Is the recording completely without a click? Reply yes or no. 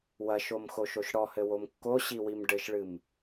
yes